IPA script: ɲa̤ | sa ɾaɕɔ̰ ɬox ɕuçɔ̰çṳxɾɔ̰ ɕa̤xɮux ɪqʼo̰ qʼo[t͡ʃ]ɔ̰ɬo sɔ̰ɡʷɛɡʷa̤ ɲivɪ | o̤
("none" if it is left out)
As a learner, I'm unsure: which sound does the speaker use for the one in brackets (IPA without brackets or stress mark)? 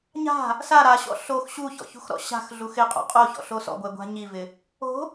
ç